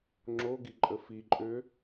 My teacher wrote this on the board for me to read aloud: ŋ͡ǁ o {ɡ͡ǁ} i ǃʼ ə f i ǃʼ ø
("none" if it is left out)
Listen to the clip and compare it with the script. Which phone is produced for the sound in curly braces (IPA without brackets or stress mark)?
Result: ɡ